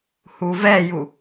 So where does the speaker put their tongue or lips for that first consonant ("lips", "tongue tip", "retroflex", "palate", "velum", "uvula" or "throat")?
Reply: throat